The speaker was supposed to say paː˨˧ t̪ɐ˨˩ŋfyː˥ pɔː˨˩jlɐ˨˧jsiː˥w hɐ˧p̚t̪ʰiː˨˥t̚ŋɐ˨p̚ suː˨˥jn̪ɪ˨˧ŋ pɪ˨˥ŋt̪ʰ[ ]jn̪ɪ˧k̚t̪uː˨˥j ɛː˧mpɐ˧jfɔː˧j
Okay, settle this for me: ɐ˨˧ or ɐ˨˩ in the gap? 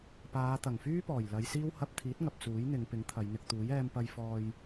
ɐ˨˧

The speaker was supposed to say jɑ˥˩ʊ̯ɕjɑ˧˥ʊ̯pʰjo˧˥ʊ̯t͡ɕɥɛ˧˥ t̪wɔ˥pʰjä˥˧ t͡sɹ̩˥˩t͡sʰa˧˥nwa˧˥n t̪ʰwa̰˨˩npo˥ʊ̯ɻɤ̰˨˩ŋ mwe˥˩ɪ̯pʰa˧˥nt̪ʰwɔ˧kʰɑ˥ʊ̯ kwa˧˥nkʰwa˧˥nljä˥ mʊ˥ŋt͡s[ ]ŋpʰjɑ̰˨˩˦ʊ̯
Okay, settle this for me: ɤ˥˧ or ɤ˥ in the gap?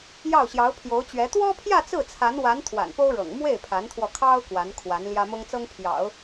ɤ˥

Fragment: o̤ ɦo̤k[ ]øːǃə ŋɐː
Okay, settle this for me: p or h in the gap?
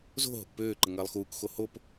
p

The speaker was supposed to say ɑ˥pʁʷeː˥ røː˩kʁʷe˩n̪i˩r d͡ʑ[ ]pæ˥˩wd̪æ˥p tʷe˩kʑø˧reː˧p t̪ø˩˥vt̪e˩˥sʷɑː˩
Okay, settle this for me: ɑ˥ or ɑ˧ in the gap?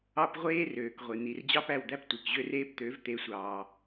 ɑ˥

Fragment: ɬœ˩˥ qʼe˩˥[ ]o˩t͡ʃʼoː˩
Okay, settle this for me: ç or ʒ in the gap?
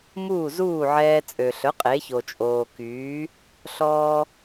ç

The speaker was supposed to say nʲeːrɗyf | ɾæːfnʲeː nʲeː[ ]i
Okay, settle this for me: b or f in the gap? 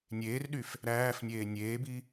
b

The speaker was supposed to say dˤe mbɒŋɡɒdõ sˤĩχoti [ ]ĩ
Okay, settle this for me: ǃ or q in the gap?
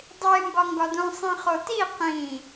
q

